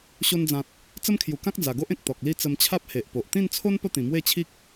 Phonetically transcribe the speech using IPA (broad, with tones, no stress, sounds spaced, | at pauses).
ɕ o˧ n d͡z ã˨ t̚ | t͡s ə˦ m kʰ j u˨˩ k ã˦ k̚ d͡z a˨˩ ɡ o˦ ʔ ẽ˨ k̚ t̪ ɔ˨ k̚ l i˥˧ t͡s ə˧ m t͡ɕʰ a˦ p̚ h e˨ ʔ p o˨ ʔ t̪ ĩ˥˧ n t͡sʰ o˦ n p ə˥˧ t̪ ĩ˨˩ m w e˥˧ t͡ɕʰ i˦ k̚